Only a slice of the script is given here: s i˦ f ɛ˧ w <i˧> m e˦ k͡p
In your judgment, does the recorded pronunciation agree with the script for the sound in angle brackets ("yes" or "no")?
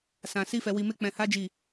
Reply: yes